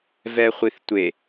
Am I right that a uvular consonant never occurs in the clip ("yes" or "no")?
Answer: no